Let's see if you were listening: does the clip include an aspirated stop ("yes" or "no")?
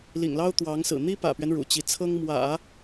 yes